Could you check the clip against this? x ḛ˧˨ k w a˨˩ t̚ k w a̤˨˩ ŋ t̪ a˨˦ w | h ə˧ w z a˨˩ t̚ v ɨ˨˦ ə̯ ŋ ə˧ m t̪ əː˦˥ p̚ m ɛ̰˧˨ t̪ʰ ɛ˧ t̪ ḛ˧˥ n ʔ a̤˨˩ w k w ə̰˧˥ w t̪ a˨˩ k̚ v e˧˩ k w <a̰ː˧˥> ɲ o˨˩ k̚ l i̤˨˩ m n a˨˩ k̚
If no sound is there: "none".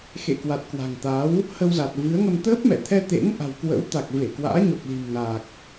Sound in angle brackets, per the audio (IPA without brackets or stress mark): a̰ː˧˥